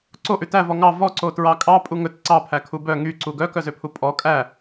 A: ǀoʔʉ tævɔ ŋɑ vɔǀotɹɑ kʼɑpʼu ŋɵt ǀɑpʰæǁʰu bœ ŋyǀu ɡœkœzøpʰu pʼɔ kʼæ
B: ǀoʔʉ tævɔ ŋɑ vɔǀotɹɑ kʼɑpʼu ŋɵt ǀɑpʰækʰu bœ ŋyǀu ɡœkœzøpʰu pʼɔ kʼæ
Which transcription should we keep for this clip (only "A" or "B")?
B